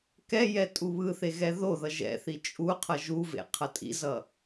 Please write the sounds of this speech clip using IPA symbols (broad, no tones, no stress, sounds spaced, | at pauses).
k ɛ j ɛ tʼ u β ɯ θ e ɣ ɛ ð o ð ʌ ʒ ɛ̰ θ i t͡ʃʼ u qʰ ʌ ʒ u v ḛ qʰ ʌ tʼ ḭ z ʌ